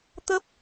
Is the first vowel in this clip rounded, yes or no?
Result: no